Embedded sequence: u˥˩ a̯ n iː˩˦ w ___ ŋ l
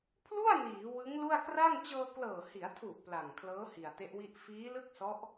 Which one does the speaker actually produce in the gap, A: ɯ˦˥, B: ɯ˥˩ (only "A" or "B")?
A